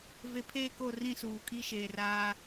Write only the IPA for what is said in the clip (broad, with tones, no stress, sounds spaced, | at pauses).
v e˨ pʰ e˦˨ k o˦˨ r ĩ˦˨ s uː˨ kʼ i˦ ʃ eː˨ r aː˦